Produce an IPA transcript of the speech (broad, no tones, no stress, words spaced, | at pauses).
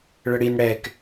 ɭəɽin ɽɛk